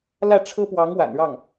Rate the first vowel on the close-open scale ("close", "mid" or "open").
open